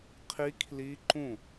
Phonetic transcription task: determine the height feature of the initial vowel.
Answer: high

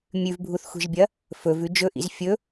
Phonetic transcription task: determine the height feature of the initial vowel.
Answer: high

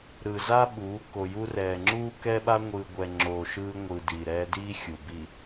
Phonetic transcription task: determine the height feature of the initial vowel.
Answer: high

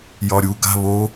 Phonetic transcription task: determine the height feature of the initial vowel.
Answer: low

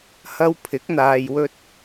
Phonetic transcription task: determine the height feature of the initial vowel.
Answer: low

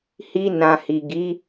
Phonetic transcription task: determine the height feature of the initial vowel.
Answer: high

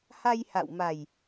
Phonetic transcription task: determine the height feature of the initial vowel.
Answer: low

